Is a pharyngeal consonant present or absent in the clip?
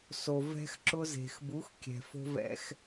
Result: absent